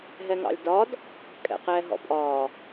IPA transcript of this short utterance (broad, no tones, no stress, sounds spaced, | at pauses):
ɦ ɛ ŋ ɑ̰ lʲ d ɒ d | kʼ ɛ̰ q ɛː ɦ ɔ̰ pʼ ɒː